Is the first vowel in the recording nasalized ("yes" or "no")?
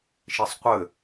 no